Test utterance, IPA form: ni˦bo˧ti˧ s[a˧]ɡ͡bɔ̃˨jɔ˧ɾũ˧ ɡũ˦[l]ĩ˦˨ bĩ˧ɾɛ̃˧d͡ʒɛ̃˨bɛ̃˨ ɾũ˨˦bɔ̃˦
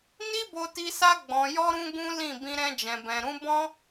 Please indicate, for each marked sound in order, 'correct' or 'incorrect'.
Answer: correct, correct

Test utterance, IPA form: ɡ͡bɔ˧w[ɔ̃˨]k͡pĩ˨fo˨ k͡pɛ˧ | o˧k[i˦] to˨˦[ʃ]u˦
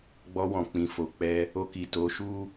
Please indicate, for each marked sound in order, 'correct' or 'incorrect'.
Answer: correct, incorrect, correct

